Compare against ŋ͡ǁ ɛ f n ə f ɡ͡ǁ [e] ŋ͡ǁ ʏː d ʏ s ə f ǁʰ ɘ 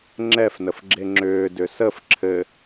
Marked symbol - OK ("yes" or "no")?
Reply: yes